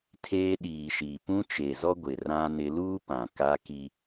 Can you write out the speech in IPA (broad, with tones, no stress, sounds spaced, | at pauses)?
tʰ eː˦ ɗ iː˨ ʃ iː˨ p ũ˦ t͡ʃ e˨ z ɔ˦ ɡʷ ɪ˨ r ã˦ n ɪ˦ l uː˦ p ã˨ k a˦ k i˦